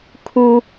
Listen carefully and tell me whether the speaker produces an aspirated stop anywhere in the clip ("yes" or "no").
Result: yes